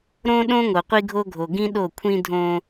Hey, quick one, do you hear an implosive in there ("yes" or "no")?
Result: yes